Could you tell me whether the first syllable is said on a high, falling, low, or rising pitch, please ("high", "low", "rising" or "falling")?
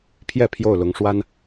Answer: falling